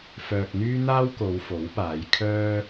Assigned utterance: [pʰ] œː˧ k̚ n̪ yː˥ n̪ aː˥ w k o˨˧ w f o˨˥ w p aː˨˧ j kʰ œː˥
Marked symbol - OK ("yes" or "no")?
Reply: no